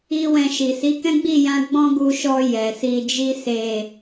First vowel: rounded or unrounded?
unrounded